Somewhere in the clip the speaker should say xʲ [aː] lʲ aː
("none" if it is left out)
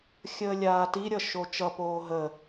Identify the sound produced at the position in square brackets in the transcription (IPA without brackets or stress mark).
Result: əː